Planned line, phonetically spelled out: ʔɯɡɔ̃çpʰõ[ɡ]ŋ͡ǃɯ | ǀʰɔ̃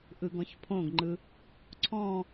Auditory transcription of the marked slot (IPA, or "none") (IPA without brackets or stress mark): ɡ